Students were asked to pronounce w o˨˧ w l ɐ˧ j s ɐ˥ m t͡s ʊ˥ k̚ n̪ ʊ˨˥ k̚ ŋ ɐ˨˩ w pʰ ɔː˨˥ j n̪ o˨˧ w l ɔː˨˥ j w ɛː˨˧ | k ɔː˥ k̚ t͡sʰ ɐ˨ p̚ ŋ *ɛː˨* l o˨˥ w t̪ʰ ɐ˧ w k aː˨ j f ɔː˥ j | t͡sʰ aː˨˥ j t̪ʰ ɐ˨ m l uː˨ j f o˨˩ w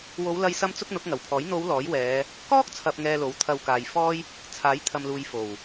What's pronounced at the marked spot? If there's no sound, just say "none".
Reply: ɛː˨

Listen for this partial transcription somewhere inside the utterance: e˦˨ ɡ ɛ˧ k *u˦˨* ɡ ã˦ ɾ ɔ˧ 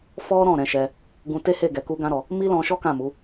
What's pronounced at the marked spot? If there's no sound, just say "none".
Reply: u˦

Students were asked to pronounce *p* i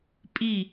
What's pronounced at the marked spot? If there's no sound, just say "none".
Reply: pʼ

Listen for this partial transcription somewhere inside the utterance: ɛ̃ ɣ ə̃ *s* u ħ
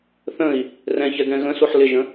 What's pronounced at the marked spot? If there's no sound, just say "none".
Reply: s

